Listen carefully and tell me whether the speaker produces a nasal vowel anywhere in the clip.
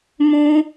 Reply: yes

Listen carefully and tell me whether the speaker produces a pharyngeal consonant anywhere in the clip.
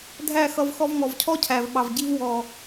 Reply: no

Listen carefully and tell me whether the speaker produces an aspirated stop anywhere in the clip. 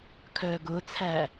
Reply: yes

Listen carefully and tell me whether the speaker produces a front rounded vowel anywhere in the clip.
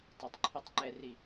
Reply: no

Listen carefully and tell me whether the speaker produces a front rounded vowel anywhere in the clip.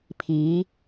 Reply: no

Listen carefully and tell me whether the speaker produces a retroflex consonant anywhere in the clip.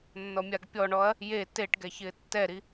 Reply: yes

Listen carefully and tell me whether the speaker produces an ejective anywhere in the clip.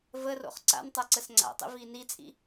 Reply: yes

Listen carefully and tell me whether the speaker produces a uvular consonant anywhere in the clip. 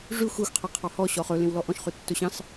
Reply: yes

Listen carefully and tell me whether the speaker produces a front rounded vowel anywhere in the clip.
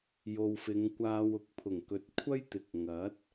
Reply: no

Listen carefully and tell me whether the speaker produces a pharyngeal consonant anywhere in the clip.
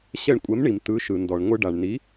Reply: no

